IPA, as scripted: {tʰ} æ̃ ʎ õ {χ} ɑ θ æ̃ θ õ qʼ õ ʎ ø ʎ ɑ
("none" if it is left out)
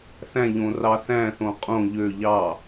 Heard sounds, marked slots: θ, r

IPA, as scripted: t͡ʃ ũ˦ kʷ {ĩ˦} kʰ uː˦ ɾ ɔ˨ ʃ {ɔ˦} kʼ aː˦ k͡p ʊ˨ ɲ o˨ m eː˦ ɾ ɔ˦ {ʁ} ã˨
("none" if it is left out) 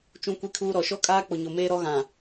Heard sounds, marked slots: i˦, ɔ˦, ɣ

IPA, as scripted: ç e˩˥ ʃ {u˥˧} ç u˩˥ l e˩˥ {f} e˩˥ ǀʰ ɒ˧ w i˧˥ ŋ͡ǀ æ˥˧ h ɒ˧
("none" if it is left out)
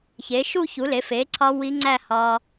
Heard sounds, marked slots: u˥˧, f

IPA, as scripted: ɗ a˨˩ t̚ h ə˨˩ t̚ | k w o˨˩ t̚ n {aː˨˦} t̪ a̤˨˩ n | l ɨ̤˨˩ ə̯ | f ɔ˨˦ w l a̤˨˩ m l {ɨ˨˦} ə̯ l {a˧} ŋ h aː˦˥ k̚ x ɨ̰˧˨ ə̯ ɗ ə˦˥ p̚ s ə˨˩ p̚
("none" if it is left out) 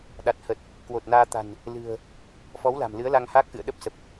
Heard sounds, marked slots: aː˧, ɨ˨˦, a˧

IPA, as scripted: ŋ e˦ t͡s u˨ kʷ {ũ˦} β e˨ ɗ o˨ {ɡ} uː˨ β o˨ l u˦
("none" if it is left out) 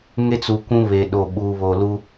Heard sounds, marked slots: ũ˦, ɓ

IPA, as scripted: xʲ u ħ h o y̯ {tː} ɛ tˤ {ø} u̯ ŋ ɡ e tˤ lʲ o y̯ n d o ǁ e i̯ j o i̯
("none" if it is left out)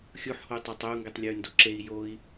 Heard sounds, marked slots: tˤ, ø

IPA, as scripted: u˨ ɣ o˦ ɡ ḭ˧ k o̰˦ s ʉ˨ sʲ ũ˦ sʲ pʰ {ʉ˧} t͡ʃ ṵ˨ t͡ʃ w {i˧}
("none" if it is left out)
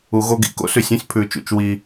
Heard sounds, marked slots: ʉ˨, i˧

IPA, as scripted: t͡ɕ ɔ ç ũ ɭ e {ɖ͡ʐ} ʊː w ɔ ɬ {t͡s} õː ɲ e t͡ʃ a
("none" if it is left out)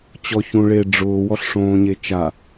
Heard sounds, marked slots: ɖ͡ʐ, ʂ

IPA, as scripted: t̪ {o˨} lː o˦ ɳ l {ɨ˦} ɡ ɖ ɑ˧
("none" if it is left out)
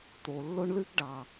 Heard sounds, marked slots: o˨, ɨ˦

